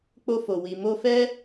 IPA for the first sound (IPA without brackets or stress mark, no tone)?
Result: k͡p